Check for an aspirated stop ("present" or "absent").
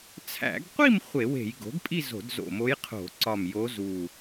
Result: present